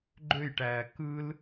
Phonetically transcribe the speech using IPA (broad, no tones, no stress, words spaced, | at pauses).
ɡ͡ǃøjʈæː kɯl